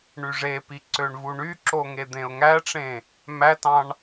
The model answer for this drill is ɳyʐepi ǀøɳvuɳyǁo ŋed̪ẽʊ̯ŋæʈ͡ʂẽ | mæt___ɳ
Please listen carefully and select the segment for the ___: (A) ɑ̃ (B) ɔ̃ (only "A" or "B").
A